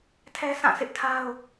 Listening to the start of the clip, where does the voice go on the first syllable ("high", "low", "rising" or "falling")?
high